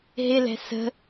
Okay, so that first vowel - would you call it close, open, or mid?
close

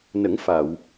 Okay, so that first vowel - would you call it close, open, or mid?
mid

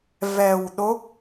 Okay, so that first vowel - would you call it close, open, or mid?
mid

